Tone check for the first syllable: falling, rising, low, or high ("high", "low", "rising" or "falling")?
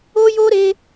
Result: high